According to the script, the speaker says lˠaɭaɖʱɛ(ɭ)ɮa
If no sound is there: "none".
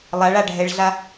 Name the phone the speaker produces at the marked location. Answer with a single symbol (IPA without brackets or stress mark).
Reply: ɭ